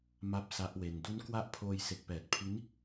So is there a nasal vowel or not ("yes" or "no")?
no